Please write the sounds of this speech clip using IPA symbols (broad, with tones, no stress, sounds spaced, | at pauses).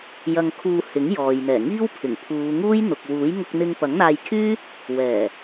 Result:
j ɐ˧ ŋ kʰ uː˧ h ɪ˨˥ ŋ j ɔː˨ j n̪ ɛː˨˩ ŋ iː˥ w pʰ ɪ˨˩ ŋ pʰ uː˨˧ ŋ uː˥ j n̪ ʊ˨ k̚ w uː˨˥ j ŋ ʊ˧ k̚ n̪ ɪ˧ ŋ p ɐ˨˥ ŋ n̪ aː˧ j kʰ yː˥ | w ɛː˨˩